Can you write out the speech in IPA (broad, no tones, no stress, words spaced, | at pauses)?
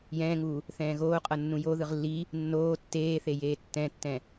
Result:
jɛ̃ːŋuː | θɛ̃ːɣoːqʼɤ nːũjoðɯʁ lːi | nːoː tːeːθe jeːtːɛ̃tːɛ̃